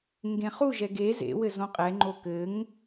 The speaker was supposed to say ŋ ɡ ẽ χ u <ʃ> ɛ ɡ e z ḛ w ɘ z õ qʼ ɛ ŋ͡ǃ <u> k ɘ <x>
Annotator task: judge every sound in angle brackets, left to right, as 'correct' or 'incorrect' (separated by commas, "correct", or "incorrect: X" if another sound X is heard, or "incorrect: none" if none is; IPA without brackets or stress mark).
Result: incorrect: ʒ, incorrect: o, incorrect: ŋ